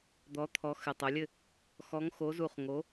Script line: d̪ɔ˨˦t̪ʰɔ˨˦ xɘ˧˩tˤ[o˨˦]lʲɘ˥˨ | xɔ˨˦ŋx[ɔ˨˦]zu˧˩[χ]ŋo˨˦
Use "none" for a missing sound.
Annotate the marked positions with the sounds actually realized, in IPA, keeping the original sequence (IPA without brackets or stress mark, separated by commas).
o˨˦, o˨˦, χ